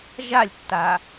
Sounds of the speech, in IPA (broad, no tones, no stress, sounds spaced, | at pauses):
ʒ a lʲ tː a